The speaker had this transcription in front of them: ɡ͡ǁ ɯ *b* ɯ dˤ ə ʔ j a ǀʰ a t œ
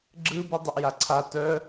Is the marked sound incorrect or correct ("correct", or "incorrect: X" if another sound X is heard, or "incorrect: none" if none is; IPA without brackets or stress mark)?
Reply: correct